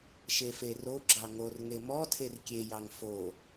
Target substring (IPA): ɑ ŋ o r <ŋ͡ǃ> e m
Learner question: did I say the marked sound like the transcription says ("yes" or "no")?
no